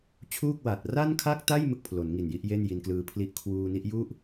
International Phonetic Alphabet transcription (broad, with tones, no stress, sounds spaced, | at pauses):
t͡ɕʰ uː˥˩ k̚ w a˨˩ t̚ r a˥˩ n kʰ a˥˩ k̚ t a˥˩ j m ɯ˥˩ k̚ pʰ l o˩˦ n ŋ i˨˩ n j i˦˥ ʔ j e˥˩ n j i˧ n k l ɯː˧ pʰ l i˦˥ ʔ kʰ w uː˧ n i˦˥ ʔ j u˥˩ ʔ